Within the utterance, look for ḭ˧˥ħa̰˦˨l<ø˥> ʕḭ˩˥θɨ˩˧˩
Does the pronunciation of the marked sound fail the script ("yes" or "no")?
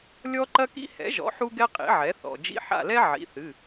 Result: yes